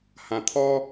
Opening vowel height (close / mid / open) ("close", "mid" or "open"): open